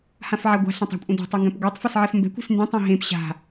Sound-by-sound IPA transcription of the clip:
h ã f ʕ a ɡʷ a̤ ɬ ã tˤ a̤ kʷʼ ẽ d ɛ̤ tˤ ʊ ŋ ɡ ɛ̃ p ɡʷ e tˤ f ɛ s ʕ ɛ f m b ɛ̤ kʷ ɛ̤ s n d ẽ tˤ ẽ ɦ ẽ p ɕ a̤

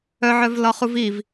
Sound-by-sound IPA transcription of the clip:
œ ʕ œ v l ɒ χ u v i v

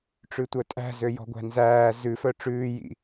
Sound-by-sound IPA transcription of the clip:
ʈ͡ʂ ʉ tʷ œ tʼ æ̤ z ø j ɔ̤ ɡʷ æ̤ n z æː z ʉ f œ ʈ͡ʂ ʉː j ḭ

